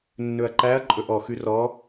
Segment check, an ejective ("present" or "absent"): present